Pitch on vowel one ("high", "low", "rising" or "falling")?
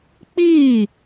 falling